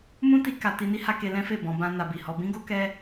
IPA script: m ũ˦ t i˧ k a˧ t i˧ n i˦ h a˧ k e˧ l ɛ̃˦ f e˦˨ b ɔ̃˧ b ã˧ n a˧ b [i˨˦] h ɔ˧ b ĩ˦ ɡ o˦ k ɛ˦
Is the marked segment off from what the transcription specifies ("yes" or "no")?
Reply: yes